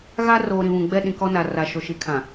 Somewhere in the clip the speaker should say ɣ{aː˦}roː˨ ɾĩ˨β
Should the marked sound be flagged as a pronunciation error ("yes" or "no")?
yes